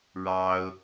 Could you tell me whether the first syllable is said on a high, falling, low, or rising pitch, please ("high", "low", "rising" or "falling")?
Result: high